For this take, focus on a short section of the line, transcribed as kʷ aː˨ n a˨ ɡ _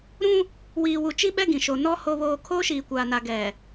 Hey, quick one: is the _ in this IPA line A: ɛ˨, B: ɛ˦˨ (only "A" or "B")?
A